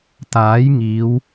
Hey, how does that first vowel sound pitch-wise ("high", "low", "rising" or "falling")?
rising